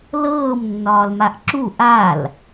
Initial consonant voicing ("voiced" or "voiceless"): voiced